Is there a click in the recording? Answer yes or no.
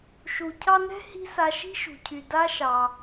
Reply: no